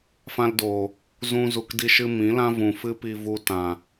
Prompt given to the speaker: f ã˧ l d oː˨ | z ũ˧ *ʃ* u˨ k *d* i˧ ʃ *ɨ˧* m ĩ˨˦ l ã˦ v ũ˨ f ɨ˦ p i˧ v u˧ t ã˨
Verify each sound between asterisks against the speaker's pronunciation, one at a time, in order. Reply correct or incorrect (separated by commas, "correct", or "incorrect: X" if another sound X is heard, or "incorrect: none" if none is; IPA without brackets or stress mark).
incorrect: z, correct, correct